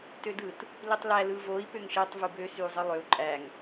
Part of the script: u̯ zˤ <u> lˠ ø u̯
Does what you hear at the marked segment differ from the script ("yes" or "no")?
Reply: yes